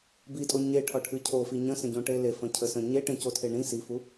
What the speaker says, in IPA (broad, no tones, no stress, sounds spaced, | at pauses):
b i tʼ o ɲ e ʈʰ ɒ ʈʰ ɨ cʰ o f i ɲ ə̃ s ə̃ ɟ õ ʈ e l e f ə̃ cʰ ə s ə̃ ɲ e ʈ ẽ c o tʰ e ɳ ĩ s i f u